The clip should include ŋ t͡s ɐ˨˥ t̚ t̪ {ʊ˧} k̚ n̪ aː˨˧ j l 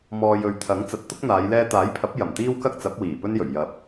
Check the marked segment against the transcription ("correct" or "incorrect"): incorrect